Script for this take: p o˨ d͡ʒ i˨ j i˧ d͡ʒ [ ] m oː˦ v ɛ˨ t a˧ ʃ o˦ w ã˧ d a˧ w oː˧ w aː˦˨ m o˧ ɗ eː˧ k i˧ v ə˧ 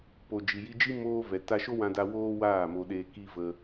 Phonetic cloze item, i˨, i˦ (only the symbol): i˦